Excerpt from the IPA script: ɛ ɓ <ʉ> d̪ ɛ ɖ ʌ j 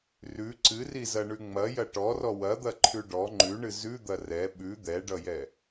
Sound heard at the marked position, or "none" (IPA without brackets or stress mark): ʉ